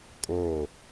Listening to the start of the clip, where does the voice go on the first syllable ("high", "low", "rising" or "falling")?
falling